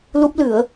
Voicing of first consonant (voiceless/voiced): voiced